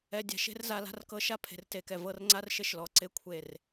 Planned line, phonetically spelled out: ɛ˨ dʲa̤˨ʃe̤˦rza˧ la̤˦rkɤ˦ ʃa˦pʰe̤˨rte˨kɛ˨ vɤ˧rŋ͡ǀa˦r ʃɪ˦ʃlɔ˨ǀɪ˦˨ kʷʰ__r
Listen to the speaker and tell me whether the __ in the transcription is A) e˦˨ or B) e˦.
A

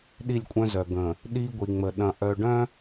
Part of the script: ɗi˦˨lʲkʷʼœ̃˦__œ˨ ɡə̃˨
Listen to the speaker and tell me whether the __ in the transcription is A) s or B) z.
B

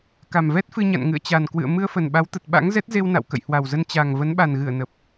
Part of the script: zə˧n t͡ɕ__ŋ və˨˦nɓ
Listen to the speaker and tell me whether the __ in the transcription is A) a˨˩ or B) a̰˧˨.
A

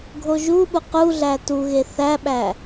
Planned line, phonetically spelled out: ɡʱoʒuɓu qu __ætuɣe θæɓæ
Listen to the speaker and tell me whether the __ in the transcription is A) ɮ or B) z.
A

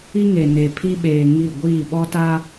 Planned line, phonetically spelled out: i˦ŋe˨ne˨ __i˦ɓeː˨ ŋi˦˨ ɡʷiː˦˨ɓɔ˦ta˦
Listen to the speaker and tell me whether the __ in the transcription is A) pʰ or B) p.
A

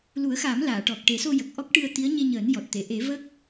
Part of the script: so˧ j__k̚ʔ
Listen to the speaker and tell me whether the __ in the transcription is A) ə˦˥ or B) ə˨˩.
B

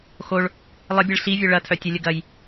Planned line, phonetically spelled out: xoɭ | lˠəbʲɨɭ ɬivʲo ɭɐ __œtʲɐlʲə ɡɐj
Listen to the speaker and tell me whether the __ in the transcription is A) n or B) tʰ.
B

